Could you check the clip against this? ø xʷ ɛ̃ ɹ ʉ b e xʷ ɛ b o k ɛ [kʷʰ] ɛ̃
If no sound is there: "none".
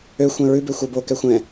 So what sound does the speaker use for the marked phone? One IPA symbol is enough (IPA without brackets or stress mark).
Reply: xʷ